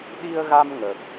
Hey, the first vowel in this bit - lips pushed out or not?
no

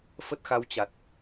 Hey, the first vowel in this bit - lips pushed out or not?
no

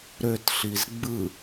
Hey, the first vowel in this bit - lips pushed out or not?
yes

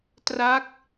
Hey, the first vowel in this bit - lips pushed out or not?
no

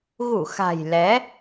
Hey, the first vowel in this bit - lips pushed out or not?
yes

